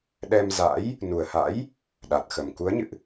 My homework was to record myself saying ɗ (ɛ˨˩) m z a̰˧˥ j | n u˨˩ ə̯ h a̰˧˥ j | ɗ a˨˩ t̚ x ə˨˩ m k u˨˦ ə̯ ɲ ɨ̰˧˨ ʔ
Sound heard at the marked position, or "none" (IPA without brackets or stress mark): ɛ˧